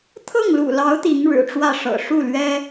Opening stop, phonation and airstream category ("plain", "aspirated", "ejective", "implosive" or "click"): aspirated